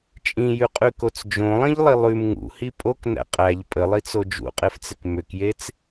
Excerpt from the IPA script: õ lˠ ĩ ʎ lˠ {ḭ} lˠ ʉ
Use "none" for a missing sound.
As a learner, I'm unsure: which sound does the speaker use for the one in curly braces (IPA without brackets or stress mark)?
i